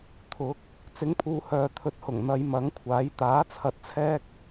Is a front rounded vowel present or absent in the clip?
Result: present